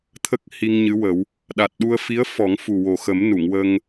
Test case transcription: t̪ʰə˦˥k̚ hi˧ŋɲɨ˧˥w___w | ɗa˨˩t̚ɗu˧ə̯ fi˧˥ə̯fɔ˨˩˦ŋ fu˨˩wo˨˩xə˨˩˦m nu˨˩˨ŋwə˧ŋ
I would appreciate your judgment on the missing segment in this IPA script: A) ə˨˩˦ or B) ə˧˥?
A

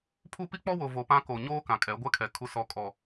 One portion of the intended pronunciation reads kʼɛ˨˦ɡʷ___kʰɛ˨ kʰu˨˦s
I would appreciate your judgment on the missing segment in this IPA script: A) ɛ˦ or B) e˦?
A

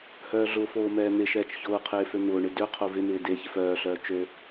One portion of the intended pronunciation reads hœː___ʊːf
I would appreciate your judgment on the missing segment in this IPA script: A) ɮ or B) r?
A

